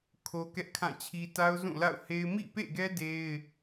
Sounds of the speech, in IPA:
kʰ o˦ k ɛ˦ ʔ kʰ ã˦˨ t͡ɕʰ i˦ t a˦ ʊ̯ z ũ˦˨ l a̰˦˨ ʊ̯ h e˦ ɪ̯ m ḭ˦˨ p ḛ˦˨ ɡ ɛ˦ d e˦ ɪ̯

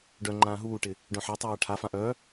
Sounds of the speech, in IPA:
ɖ œ ŋ͡ǃ ãː ɦ uː ʈ ɪ | ɖ œ̃ ħ a tˤ aː ʈʰ a f ã ʔ œ

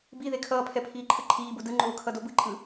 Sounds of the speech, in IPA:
b i ð e kʰ ʌː pʰ ɛ pʰ iː ǃʰ ɯ ǃʰ iː b u d ɯ ŋ͡ǃ oː kʰ ʌ d o b ɯ ǃʼ ɯ

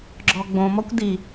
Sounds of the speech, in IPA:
ɡ͡ǁ ɔ ɡ͡b õ m ɔ kʷ d i

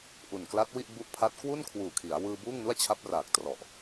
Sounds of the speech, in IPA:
ʔ u˨˩ n k l a˦˥ t̚ w i˥˩ ʔ b u˦˥ ʔ pʰ a˦˥ t̚ k w u˥˩ n kʰ w uː˨˩ kʰ i˩˦ a̯ w ɯː˧ b uː˥˩ ŋ n u˥˩ a̯ t͡ɕʰ a˦˥ p̚ r aː˨˩ k̚ t r ɔ˨˩ ʔ

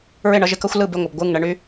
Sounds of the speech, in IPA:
ɹ ɪ˦˨ ɳ ʌ˧ ʒ ɪ˨ k ʌ˦ xʷ l ɯ˦˨ b ɪ˦˨ ŋʷ ʌ˨ b ɡʷ ɯ˦˨ ŋ ɳ ə˧ ɳ y˦

